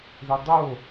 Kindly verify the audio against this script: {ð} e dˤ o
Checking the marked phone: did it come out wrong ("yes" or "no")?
no